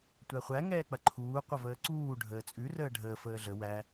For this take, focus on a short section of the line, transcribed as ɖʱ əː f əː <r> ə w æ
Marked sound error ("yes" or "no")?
yes